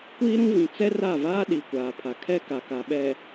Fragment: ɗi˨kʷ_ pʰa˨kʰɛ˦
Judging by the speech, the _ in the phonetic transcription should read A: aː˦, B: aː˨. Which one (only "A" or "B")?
B